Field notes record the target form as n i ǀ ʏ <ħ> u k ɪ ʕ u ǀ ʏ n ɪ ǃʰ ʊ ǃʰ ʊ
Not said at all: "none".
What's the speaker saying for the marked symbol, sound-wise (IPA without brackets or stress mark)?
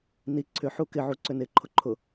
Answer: ħ